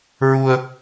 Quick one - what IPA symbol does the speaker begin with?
ɹ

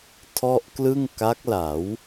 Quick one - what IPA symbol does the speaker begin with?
tʰ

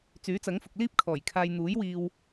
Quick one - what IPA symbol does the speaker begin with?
t͡s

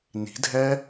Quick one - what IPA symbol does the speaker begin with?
n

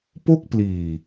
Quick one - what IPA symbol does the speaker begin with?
p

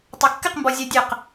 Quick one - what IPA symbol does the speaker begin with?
tˤ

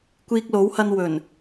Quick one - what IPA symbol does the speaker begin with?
kʷ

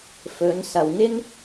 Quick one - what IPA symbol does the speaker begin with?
f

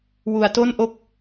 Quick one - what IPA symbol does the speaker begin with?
w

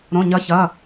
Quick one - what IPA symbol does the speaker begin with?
ɾ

